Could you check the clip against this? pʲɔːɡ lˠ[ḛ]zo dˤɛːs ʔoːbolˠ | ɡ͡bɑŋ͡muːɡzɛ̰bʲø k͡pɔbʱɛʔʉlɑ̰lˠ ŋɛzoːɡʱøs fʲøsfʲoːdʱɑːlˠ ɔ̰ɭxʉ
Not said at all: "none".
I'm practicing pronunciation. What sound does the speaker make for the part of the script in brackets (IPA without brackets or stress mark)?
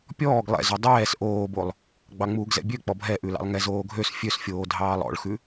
ɛ̰